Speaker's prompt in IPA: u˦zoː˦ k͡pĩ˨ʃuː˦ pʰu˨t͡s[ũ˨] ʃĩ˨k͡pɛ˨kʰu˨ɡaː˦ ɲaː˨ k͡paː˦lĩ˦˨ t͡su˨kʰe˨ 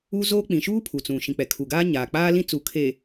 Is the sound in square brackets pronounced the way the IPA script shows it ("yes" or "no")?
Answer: yes